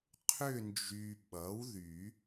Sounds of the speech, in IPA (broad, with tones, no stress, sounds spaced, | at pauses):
qʰ ʏ˦˨ n d͡ʒ y˨ ɓ ʌ˩˥ w ð y˨˩˦